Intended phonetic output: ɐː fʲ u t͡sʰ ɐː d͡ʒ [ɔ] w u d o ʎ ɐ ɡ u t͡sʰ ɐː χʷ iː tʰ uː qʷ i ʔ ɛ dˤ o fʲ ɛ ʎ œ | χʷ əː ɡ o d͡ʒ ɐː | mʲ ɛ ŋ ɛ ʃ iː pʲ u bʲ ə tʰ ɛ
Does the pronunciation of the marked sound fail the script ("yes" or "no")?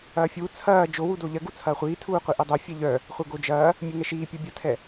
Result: yes